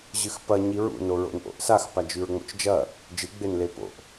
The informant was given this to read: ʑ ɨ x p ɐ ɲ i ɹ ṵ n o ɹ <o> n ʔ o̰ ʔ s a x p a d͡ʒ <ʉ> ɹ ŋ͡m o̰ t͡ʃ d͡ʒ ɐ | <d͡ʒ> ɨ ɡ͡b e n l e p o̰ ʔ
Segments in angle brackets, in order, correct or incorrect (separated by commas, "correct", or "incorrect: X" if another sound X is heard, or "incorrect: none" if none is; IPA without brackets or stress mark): incorrect: o̰, correct, correct